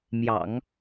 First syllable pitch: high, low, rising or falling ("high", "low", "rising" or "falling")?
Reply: low